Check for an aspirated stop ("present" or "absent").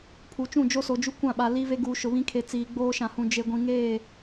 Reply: present